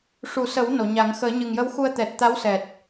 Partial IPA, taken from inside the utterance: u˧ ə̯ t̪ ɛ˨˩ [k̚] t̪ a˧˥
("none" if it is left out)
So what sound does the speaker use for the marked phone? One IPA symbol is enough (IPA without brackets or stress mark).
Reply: t̚